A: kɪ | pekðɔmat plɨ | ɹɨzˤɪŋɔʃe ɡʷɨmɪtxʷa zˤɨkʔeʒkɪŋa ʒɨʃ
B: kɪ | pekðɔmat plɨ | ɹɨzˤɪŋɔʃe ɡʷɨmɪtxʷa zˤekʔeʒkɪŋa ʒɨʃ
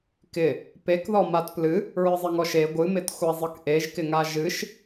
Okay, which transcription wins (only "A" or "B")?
A